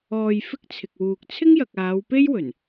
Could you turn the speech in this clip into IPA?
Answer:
ɔː˨ j f ɪ˥ k̚ t͡sʰ ɪ˨ k̚ w uː˨ k̚ t͡sʰ ɪ˥ ŋ j ɐ˨ k̚ aː˨˧ w p e˥ j w ɵ˨˩ n

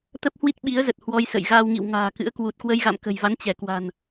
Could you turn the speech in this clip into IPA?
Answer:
t̪ ə˦˥ p̚ h w i˦˥ t̚ ɓ i˨˦ ə̯ z ə˨˩ t̚ h w ɔ˧ j s ə̰˧˨ j ɣ aː˧ w ŋ ḭ˧˨ w ŋ a̤ː˨˩ k ɨ̰˧˥ ə̯ k w u˨˩ t̚ k w ə˧ j ɣ a̰˧˨ m k ə̤˨˩ j v a˨˦ n t͡ɕ ɛ˧˩ k w a̤˨˩ n

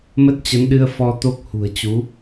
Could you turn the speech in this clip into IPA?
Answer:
m ə˦˥ t̚ t͡ɕ ə˨˦ n ɗ ɨ˧ ə̯ f ɔ˧ t̪ o˦˥ k̚ h ṳ˨˩ ə̯ t͡ɕ u˨˦

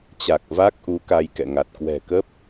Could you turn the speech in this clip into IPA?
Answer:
t͡ɕ a˨˩ k̚ v a˦˥ k̚ ʔ u˨˦ k a˧ j k ɛ̰˧˨ ŋ a˨˩ t̚ k w ɛ̤˨˩ k ə˦˥ p̚

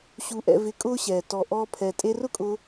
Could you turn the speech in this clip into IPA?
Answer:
ɕ u˨ ʔ ɛ̰˨ v ɪ˨˦ kʼ ʊː˦ ɕ ɛː˨ t ɔ˨ ʔ ɔː˧ pʰ ɛ˨ tʼ e˧ r ʊ˦ kʼ ʊ˧

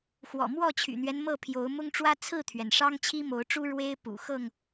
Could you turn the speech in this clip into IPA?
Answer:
x w ɔ̰˨˩ m w ɔ˥˨ t͡ɕʰ y̰˨˩ n̪ ɥ ɛ˦ n m ɤ˥˨ pʰ j o˨˦ ʊ̯ m ʊ˦ ŋ ʈ͡ʂ w ä˦ t͡sʰ ɹ̩˥˨ t̪ʰ ɥ ɛ˩ n ʂ ɑ˦ ŋ t͡ɕʰ i˦ m o˨˦ ʊ̯ ʈ͡ʂ u˦ ɻ w e˦ ɪ̯ p ṵ˨˩ x ɤ˥˨ ŋ

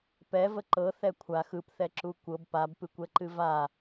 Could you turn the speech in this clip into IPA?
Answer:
p ɛ v ə ǃ ɤ θ ɛ kʷʰ a x ɯ p θ ɛ ǁ u kʷ ɤ b p a b p ɨ kʷ ɛ ǃ ɨ v a

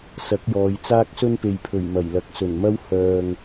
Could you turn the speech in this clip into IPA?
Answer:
s ɐ˨˥ k̚ j ɔː˨˧ j t͡s aː˥ k̚ s ɵ˥ n p e˨ j pʰ ɵ˨˩ ɥ m ɐ˨˩ j l ɐ˨˥ k̚ s ɵ˨˩ n m ɐ˥ w h œː˨ ŋ

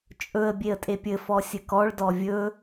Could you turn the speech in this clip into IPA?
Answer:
t͡ʃʼ ɵ ə̯ bʲ e ə̯ tʼ e pʲ ɘ f ɔ sʲ ɘ k ɔ ɭ d ɔ vʲ ɵ

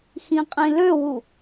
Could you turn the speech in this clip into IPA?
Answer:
x ĩ qʼ ĩ l ø w u

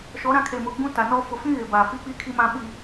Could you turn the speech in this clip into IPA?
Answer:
ʃ ɔ˨˦ ɾ ã˨˦ kʰ e˨ m ʊ˨ ɡ͡b ũ˦ t a˨ n ɔ˦ f ʊ˨ f ĩ˦ ɣ ɪ˨ b a˨ f i˦ k͡p i˦ kʰ i˦ m ã˦ ɓ i˦

